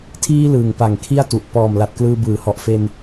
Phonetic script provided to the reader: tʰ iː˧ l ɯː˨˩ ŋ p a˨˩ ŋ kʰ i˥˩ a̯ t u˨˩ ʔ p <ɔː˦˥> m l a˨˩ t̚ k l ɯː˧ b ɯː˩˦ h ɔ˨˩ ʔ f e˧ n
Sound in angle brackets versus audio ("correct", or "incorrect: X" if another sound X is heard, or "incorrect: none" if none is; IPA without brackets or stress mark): incorrect: ɔː˨˩